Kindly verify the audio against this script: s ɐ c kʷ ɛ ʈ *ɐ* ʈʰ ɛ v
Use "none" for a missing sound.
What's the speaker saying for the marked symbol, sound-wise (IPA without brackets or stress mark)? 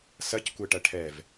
ɐ